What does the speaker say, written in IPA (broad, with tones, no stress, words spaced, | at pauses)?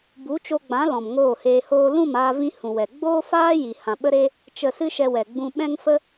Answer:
bu˨˦t͡ʃo˧ɡ͡bã˨˦ lɔ̃˨mŋoː˦˨heː˧hoː˦ lũ˦˨maː˧vĩ˧ hũ˨wɛ˨ ɡ͡boː˦faː˦ ji˨hã˨ɓə˦ɾe˦ | t͡ʃə˧sɨ˦ʃɛ˧wɛ˨ ɡ͡bũ˧ɓɛ̃˦ŋfə˦